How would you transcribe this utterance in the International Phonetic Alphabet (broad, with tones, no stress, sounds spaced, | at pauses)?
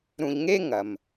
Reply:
ɾ ũ˧ ʎ ŋ e˥ ŋ ɐ˩ m